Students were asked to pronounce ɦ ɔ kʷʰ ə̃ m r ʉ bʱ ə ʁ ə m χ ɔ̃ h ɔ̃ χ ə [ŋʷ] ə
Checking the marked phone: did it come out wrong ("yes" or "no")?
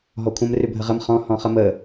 yes